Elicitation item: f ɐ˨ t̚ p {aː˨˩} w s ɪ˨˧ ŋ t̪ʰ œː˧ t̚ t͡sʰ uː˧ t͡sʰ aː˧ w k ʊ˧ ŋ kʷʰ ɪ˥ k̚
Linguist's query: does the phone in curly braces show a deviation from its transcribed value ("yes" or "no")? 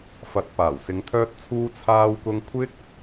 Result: no